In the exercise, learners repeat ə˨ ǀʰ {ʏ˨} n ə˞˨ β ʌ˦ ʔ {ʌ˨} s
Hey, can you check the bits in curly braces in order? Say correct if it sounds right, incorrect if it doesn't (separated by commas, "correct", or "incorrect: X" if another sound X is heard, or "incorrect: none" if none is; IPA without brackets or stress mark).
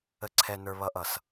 incorrect: ɛ˨, correct